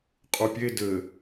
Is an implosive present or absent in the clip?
absent